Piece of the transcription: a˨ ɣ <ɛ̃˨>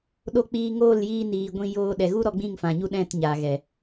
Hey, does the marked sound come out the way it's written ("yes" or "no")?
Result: no